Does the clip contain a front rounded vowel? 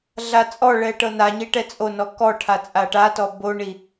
no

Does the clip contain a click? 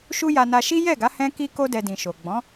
no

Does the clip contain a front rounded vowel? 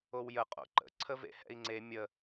no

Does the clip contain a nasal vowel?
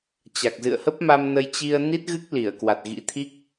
no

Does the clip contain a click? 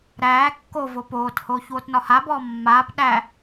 no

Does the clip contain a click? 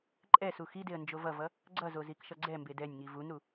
yes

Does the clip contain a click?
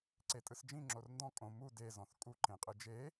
yes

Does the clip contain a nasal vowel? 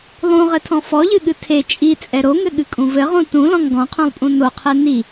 yes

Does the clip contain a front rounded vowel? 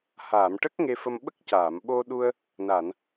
no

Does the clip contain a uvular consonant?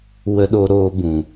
no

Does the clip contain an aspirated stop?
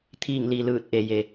yes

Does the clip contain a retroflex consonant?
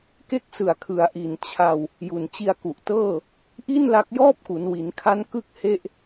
no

